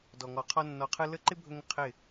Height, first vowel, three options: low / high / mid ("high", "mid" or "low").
mid